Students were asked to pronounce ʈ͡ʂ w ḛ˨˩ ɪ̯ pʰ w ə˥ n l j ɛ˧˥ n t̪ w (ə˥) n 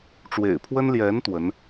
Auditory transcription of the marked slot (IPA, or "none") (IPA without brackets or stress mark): ə˧˥